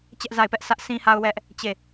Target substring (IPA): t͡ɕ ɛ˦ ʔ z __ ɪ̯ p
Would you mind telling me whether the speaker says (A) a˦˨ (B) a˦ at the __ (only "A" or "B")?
A